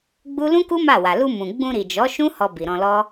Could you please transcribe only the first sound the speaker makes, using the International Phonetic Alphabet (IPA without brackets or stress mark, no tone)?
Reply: ɡ͡b